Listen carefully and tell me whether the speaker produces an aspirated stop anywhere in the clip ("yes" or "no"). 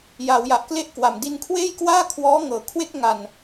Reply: yes